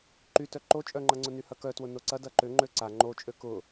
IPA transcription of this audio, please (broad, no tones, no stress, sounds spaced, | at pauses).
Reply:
ǃ y t œ ǃ o t͡ʃʼ œ ŋ͡ǃ ɐ ŋ͡ǀ ʊ n y h ɐ k œ t w ʊ n o ǀ ɐ d ɐ ǃ ʏ ŋ͡ǃ ø ǀ a ŋ͡ǃ o t͡ʃʼ ø k ʊ